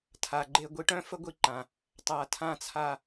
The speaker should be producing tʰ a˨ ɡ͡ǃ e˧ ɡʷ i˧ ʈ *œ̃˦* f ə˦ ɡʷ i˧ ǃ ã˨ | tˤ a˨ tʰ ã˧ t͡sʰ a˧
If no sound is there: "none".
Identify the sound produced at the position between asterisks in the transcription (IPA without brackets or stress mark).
œ̃˦